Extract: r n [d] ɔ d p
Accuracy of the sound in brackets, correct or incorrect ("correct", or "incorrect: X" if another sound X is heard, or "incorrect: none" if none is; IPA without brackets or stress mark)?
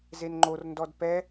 correct